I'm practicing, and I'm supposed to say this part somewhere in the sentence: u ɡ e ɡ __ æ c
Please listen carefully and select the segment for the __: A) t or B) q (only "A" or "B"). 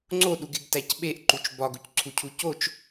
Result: A